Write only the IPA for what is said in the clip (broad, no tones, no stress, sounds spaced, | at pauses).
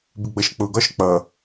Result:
b ɪ ɡ͡b ʌ ʃ k͡p ʊ ɡ ɒ ʃ k͡p ʌ